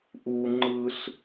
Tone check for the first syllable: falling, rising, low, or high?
high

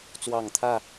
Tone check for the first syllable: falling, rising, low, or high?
low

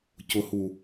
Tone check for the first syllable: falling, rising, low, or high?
low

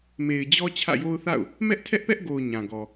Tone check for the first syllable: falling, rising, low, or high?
low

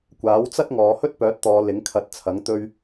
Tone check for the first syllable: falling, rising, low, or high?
rising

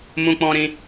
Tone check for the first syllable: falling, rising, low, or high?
high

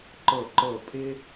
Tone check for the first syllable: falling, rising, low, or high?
falling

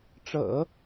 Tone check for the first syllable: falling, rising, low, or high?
low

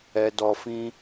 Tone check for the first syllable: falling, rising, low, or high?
low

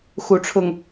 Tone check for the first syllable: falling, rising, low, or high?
rising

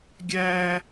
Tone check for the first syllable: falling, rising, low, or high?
high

